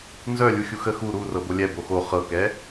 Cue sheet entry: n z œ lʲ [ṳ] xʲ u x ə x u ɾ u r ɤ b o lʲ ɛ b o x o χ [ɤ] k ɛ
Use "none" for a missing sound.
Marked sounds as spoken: u, ɤ

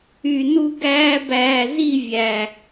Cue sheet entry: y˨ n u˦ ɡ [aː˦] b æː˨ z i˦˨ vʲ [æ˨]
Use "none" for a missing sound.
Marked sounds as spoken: æː˦, æ˨

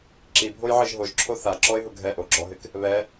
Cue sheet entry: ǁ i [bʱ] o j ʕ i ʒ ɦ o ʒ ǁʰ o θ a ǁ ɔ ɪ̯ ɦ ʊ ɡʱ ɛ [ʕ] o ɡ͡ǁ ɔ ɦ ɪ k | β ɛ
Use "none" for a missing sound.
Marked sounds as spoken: bʱ, ʔ

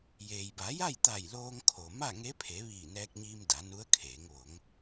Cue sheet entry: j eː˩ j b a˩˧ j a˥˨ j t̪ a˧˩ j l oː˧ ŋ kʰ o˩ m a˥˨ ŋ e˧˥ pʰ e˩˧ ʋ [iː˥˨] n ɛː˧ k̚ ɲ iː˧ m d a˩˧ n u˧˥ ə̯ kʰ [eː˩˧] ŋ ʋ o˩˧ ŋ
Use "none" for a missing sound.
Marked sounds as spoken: iː˧˩, eː˩˧

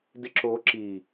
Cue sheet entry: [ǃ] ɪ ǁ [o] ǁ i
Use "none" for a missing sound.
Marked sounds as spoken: d, o

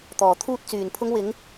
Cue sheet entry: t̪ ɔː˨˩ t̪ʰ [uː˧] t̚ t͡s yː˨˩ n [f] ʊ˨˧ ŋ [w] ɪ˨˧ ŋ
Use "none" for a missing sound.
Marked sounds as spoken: uː˧, pʰ, w

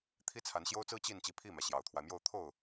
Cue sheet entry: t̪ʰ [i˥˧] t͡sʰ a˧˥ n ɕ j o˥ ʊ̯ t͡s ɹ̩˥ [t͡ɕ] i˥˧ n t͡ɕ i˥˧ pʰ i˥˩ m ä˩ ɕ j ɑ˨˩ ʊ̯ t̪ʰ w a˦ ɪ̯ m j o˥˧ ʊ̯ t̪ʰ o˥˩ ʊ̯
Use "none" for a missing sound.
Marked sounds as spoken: i˥, t͡ɕ

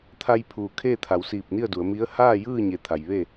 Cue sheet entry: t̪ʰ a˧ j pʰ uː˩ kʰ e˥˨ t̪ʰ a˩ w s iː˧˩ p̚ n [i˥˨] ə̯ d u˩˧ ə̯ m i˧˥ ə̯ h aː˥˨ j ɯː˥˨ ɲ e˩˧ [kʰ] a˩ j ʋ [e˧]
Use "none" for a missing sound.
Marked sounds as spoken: i˥˨, t̪ʰ, e˥˨

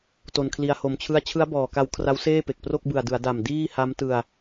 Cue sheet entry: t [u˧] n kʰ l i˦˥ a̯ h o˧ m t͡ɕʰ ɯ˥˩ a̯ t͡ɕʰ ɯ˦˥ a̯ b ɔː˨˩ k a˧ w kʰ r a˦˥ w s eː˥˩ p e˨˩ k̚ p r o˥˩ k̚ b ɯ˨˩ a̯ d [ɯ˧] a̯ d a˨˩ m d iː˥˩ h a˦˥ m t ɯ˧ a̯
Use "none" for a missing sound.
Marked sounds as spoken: o˧, ɯ˩˦

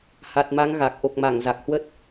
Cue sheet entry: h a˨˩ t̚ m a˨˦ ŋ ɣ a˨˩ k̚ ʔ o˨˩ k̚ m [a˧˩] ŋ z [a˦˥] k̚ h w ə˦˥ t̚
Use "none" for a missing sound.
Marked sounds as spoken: a˧˩, a˨˩

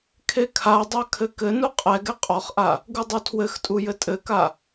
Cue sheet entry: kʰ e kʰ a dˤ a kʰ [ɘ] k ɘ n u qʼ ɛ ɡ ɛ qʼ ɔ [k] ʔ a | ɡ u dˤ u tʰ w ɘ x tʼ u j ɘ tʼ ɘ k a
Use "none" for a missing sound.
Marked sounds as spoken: ɘ, χ

